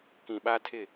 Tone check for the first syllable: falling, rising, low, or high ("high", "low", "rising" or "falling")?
low